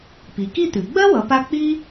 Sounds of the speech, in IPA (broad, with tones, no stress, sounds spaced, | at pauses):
p i˩˧ k i˥˧ t̪ ʉ˩˧ ɡ͡b ɜ˥ w ʌ˩˧ p a˧ k͡p i˥